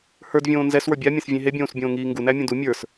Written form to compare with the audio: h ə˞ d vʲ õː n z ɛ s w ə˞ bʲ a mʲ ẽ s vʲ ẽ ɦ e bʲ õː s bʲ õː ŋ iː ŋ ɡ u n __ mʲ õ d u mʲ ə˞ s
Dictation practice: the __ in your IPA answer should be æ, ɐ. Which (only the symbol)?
æ